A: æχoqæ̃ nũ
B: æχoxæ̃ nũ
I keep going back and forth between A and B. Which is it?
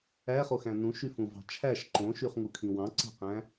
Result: B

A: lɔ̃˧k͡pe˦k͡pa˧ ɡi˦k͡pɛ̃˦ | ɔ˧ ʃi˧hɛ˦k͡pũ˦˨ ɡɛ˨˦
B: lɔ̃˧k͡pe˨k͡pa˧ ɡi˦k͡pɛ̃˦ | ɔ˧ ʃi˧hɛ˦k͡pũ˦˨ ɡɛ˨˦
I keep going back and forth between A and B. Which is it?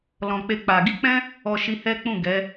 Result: A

